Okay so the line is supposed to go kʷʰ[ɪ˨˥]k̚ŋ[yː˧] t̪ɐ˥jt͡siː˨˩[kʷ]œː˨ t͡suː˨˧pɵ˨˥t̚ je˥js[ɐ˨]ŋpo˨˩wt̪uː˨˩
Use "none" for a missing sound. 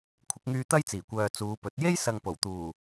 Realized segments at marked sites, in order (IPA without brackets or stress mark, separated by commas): ɪ˨˥, yː˧, kʷ, ɐ˨